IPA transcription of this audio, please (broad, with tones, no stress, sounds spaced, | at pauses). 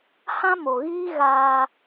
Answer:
h ã˦ m o˨ ɣ iː˦ ɣ aː˧